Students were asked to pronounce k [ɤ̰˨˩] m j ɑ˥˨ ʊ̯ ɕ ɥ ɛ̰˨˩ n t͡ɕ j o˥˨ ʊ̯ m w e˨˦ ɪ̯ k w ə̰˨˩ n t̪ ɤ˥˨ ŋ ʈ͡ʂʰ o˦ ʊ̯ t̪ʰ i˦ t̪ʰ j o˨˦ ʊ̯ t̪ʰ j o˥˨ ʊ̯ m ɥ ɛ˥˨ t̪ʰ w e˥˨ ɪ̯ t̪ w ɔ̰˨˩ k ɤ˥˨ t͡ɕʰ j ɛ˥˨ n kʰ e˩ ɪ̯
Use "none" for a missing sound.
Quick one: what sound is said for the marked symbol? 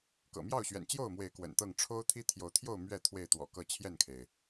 ɤ̰˨˩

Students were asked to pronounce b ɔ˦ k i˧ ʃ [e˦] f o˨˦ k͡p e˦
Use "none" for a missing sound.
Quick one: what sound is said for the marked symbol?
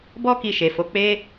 e˨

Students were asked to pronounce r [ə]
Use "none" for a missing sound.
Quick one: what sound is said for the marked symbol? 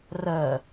ə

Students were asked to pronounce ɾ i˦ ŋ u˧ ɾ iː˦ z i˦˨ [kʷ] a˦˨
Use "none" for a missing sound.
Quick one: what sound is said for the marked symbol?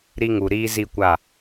kʷ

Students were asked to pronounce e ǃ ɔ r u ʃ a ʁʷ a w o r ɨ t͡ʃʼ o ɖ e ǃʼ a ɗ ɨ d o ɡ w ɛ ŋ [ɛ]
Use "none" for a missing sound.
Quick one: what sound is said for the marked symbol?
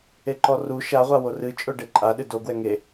e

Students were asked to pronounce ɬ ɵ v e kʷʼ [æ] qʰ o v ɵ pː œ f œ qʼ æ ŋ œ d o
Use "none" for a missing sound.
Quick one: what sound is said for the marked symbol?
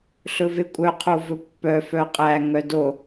œ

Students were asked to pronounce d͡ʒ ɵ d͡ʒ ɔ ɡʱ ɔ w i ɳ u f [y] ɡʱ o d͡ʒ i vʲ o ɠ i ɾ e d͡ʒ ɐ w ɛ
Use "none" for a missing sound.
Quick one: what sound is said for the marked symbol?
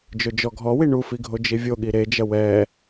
i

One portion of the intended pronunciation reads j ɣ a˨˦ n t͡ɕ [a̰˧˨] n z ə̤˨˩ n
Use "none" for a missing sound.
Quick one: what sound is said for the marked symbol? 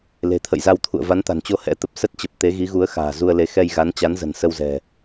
a˨˦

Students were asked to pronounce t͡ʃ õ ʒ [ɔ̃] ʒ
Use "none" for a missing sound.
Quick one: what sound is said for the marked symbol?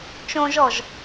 ɔ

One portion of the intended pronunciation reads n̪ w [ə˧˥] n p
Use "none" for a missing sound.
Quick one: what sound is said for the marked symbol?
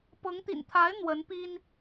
ə˧˥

